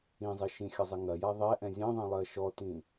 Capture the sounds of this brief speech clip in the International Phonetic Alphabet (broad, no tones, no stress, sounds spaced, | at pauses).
ĩ zˤ i ʃ ĩ xʲ ɐ zˤ i ŋ ɐ j a ðˤ ɛ ʔ ɛ̃ zʲ ɛ̃ ðˤ ĩ lˠ ɜ ʃ ɔ t ĩ